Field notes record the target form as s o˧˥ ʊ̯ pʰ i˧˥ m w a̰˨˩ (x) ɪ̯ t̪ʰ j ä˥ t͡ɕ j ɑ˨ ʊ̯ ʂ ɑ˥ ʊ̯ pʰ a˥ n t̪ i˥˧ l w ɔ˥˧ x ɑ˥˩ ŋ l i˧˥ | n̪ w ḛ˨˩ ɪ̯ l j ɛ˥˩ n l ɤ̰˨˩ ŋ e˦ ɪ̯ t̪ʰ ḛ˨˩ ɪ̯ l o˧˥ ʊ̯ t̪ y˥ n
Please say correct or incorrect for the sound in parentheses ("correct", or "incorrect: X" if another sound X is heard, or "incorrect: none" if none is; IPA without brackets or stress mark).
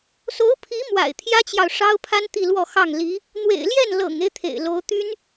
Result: incorrect: none